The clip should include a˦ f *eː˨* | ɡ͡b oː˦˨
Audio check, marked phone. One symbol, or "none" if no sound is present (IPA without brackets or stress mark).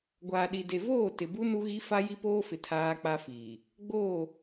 iː˨